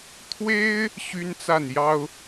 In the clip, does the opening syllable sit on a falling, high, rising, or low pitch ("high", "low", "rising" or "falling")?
high